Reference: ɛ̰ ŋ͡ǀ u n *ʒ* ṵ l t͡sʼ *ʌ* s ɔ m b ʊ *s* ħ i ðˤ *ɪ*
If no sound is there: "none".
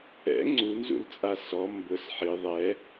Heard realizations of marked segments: z, a, s, ɛ

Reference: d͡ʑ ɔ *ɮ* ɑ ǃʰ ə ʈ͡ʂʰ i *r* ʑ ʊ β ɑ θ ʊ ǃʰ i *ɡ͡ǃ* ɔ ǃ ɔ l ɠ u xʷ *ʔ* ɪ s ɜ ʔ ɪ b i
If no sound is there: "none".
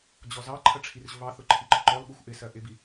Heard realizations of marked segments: z, r, ɡ͡ǃ, ʔ

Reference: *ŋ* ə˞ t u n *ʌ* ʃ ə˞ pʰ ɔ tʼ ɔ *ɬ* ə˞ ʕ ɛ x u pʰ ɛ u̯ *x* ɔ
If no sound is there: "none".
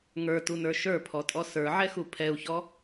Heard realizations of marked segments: ŋ, ə˞, s, ç

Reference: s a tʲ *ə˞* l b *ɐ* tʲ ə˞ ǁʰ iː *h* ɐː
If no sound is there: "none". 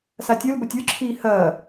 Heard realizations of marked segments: ə˞, ɐ, h

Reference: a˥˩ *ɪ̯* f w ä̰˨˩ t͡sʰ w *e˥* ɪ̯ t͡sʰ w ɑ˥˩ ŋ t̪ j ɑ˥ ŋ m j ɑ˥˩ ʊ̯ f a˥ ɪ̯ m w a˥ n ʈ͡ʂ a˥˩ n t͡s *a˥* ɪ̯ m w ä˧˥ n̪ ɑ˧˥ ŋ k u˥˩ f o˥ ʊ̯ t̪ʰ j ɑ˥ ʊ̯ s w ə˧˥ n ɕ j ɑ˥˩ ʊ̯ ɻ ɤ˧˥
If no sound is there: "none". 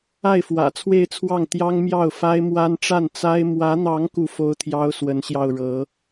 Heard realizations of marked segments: ɪ̯, e˥˧, a˥

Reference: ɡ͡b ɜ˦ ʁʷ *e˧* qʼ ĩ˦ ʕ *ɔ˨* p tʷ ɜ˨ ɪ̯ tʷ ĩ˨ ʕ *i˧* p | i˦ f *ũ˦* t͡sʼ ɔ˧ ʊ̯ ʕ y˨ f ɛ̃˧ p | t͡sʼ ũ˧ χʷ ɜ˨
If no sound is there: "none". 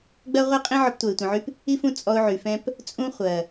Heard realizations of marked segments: e˦, ɔ˧, y˧, ũ˦

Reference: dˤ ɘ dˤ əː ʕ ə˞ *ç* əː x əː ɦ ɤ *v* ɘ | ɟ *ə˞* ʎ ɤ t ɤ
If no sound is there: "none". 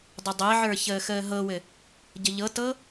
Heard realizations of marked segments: ç, w, ə

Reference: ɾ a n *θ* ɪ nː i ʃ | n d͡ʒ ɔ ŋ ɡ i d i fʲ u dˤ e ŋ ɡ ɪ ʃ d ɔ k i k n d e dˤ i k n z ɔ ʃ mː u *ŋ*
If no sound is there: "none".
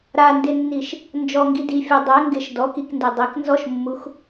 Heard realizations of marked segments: d, x

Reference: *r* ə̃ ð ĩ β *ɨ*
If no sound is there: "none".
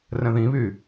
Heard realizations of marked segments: r, y

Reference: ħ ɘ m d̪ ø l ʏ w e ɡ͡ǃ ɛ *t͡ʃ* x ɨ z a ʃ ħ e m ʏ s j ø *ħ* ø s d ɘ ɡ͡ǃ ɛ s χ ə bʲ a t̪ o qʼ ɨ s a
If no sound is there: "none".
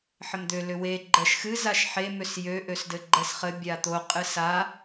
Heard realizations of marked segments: ʃ, ʔ

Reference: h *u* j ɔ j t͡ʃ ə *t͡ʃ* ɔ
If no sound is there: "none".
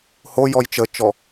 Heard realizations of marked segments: o, t͡ʃ

